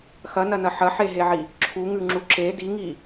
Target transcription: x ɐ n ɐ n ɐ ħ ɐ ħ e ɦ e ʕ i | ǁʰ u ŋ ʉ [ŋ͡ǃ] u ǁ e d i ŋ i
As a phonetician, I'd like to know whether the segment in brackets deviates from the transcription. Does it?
yes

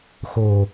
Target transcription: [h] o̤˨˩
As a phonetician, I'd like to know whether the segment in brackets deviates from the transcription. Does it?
yes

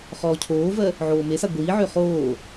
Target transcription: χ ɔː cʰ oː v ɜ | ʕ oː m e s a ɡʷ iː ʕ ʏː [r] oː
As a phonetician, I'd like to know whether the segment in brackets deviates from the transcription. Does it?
yes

